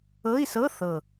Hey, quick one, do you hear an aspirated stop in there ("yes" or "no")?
no